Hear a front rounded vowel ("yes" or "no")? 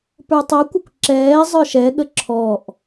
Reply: no